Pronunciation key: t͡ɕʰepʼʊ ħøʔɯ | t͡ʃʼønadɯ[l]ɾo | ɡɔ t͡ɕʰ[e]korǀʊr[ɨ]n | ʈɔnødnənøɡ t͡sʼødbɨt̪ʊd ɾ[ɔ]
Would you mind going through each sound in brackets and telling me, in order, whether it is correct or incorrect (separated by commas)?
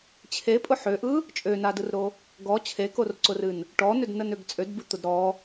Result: incorrect, correct, correct, correct